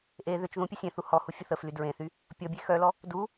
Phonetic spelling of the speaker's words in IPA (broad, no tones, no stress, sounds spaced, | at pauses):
ʔ e ð ʏ t͡ʃ ð ũ pʲ ə sʲ ẽ θ u h ɔ h u fʲ ʊ θ ə f l y d ɹ ẽ θ y | pʲ ɔ bʲ e x œ l ɔ | d u